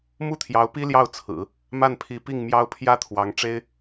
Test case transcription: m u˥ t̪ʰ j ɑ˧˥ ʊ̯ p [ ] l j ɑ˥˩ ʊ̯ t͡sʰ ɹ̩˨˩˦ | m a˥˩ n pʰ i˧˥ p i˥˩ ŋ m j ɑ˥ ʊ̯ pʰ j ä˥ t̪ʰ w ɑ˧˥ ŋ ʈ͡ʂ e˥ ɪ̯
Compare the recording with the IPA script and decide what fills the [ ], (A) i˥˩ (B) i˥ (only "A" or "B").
B